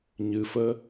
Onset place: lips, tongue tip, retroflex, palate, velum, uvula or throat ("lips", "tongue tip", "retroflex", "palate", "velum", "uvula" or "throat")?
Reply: palate